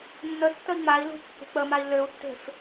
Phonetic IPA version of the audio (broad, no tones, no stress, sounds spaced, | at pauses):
nː ə tː ə i̯ ŋ͡m a i̯ l ṳ kː e̤ k͡p ə m a i̯ l ø u̯ tː e̤ f